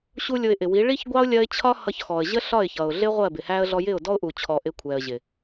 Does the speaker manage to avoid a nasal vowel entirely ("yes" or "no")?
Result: yes